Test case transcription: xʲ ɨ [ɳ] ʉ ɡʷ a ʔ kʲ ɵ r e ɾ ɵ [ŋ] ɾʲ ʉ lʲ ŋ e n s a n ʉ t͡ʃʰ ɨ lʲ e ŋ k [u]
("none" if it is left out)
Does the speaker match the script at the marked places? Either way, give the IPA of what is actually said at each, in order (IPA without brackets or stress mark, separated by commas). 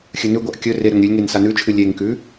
n, ŋ, ʉ